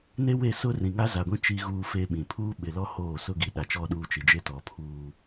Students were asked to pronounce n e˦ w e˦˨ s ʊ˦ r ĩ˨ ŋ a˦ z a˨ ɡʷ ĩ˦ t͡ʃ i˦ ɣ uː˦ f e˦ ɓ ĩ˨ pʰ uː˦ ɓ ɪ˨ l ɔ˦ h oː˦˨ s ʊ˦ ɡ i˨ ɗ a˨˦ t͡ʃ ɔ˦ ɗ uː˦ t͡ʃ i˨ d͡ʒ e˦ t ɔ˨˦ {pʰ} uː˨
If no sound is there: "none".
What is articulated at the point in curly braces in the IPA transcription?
pʰ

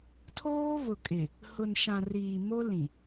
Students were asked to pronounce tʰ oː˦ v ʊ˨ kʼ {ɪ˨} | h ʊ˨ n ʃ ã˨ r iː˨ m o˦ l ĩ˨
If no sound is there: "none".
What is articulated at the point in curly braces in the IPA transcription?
ɪ˨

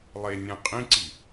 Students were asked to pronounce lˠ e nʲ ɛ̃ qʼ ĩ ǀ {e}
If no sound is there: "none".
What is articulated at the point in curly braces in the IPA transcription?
i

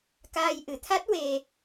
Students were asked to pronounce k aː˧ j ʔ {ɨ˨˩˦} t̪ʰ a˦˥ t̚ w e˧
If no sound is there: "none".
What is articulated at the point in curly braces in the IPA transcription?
ɨ˨˩˦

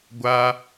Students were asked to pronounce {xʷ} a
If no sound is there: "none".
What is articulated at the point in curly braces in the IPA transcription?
ɡʷ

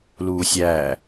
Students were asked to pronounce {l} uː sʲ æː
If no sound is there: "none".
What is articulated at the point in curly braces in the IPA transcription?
l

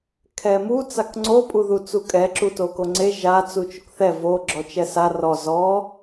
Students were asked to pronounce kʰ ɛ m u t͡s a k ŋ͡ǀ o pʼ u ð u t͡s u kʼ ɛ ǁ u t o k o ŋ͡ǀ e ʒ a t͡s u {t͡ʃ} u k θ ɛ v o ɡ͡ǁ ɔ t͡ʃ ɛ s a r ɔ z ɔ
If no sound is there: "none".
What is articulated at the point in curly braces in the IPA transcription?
t͡ʃ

